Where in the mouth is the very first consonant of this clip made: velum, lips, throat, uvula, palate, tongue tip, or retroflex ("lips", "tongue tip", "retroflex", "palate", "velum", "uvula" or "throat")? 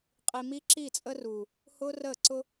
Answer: uvula